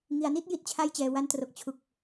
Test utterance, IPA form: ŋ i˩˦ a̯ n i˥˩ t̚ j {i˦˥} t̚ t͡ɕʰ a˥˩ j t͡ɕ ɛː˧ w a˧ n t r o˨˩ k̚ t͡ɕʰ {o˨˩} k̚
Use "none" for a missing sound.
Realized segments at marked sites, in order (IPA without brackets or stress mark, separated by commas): i˥˩, u˨˩